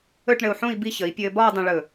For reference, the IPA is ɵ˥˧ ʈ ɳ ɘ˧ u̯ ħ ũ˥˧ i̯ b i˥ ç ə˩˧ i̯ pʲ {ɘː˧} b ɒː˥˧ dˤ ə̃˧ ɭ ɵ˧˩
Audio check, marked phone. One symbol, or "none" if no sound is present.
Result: ɘː˧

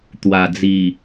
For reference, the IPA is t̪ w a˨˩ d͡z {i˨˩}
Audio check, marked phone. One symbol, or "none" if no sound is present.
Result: i˨˩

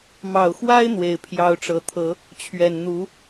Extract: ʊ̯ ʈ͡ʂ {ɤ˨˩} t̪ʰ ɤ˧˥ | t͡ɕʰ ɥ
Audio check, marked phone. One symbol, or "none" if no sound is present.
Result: ɤ˨˩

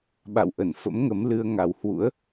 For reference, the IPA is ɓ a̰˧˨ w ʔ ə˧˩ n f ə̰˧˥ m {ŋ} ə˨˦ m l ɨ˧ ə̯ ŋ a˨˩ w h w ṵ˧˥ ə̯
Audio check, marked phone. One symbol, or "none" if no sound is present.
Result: ŋ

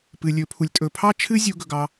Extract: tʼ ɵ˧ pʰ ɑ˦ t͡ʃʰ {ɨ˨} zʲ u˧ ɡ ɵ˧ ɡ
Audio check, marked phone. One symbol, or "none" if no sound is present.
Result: ɨ˦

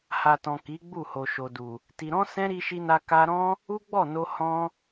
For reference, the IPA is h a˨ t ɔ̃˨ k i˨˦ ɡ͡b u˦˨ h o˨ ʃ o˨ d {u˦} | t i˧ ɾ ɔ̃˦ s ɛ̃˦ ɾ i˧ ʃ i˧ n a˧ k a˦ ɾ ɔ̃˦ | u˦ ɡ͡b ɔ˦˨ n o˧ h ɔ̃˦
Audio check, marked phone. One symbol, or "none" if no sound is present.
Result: u˨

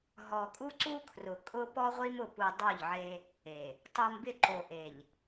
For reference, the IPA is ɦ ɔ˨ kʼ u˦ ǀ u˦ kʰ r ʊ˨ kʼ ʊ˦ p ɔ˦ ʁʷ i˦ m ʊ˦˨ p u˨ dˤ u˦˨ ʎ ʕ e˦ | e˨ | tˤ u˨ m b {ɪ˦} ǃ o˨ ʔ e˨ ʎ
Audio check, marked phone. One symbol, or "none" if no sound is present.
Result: ɪ˦˨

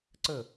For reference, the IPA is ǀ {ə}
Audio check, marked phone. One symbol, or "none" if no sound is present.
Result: ə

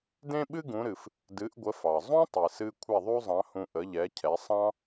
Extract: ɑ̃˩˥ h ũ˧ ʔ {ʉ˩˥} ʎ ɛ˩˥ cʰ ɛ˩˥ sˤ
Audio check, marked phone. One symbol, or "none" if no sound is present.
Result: ə˩˥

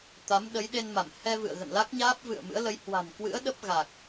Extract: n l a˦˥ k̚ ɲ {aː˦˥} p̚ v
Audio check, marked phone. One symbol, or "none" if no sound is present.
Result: aː˦˥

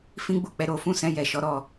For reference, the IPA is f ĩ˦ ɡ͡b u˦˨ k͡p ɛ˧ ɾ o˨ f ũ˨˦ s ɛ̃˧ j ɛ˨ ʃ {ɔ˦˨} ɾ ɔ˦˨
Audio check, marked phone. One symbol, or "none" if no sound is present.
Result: ɔ˨˦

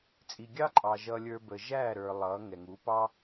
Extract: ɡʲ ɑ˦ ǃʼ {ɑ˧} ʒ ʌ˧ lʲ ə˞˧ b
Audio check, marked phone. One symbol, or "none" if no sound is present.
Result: ɑ˨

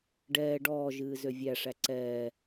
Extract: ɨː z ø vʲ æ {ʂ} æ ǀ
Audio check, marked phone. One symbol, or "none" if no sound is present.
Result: ʂ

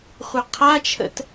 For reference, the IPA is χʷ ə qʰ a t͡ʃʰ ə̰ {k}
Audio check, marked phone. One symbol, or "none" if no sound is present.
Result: t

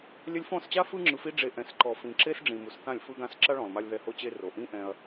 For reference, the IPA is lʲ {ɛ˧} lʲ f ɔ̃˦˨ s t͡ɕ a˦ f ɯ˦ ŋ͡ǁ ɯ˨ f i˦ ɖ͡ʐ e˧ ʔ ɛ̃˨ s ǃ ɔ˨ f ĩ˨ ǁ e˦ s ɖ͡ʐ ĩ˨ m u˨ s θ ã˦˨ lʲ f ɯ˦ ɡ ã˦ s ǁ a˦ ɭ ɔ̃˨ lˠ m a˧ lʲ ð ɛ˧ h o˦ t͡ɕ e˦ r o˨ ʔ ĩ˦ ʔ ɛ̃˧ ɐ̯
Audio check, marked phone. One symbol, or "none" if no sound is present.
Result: ɛ˧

